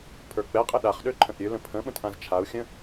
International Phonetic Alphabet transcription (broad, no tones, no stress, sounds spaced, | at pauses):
pʰ ə˞ k͡p ɛ qʼ ə ɗ a χ ɗ ø ǃʰ ə̃ ʔ ɾʲ ø l ə̃ pʰ ə̃ ɓ ə̃ t ʔ ã z t͡ʃʰ a u̯ xʲ ə̃